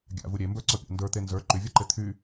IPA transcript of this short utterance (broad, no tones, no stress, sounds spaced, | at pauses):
ɡʲ a̰ v u ɾʲ e m b ə˞ ǀ ɔ pʲ a̰ n d ə˞ t̪ e n z ə˞ ǃ y vʲ ɒ ǃ e t̪ʰ y